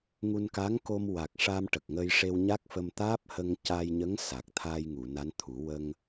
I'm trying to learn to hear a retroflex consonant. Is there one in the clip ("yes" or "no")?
yes